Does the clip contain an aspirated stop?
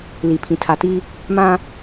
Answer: yes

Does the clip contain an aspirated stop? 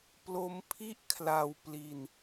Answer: yes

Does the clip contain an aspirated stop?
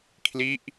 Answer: yes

